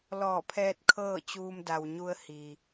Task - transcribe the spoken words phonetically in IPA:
lɔː˧˩pʰɛː˧t̚ kʰɤː˥˨t͡ɕuː˧m da˩wɲu˧ə̯ hi˩

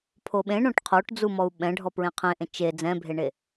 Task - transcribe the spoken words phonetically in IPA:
pʰoɓẽ ɳõʈqʰoʈ d͡zumɔu̯ɓɛ̃ ɖʱɔpɹẽqʰẽʔẽ t͡ʃe d͡zɛ̃bʱeɳe

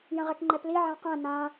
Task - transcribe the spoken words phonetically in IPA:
jə̃ʁɛkŋ͡ǃɛpli ʕãqæ̃ nã

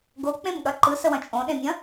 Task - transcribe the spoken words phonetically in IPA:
ɡok͡pẽmɠɐ ǃɯsəwɐ̃ t͡ʃʼõɗẽmʲɐ̃

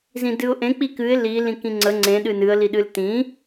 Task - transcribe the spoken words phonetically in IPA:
zĩdɨʊ̯ʔẽ k͡pikɨɪ̯ li lĩkĩŋ͡ǀə ŋ͡ǀẽ ɗɨnɨə̯ liɗɨltĩ

